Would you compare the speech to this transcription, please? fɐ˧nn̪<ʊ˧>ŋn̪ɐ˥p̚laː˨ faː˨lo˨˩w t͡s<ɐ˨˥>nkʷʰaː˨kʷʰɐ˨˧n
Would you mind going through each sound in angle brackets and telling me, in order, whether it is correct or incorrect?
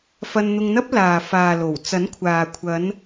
correct, correct

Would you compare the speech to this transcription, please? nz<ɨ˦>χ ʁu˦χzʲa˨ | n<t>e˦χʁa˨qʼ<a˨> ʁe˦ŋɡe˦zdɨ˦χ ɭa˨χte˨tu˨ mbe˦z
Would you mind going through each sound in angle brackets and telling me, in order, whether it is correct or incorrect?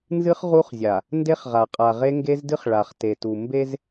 correct, incorrect: d, correct

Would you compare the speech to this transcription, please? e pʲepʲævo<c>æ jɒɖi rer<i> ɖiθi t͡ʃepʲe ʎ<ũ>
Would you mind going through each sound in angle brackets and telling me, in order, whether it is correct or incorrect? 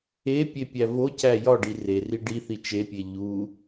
correct, correct, incorrect: u

